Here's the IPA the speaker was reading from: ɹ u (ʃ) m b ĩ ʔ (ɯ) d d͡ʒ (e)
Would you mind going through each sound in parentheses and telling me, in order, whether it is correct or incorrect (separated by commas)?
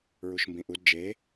correct, incorrect, correct